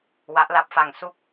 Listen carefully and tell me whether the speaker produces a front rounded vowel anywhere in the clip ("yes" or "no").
no